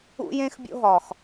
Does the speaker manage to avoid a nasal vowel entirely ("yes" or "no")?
no